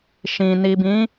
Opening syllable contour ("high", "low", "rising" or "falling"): low